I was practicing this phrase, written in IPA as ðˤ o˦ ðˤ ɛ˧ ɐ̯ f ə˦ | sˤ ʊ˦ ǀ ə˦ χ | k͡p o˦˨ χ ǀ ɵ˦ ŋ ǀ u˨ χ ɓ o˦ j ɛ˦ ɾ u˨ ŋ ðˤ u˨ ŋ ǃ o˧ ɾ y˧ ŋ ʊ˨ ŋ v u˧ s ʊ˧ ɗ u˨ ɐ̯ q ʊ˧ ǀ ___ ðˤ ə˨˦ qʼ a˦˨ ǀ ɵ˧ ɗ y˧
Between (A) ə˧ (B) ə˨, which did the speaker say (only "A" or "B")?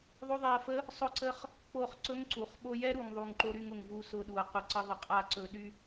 A